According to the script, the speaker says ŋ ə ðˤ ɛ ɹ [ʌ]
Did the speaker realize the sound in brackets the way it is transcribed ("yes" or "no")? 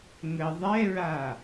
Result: no